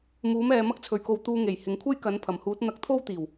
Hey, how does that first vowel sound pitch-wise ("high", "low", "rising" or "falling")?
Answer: rising